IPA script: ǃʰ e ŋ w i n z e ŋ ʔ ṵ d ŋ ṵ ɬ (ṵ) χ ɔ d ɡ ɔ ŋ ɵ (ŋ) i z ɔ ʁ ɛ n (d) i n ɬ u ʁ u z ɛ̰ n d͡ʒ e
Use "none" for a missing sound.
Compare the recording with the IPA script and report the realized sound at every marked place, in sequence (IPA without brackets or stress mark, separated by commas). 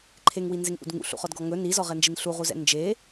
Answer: ṵ, n, d͡ʒ